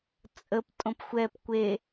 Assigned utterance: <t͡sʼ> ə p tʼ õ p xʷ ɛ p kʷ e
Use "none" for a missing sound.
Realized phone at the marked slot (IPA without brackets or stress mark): t͡sʼ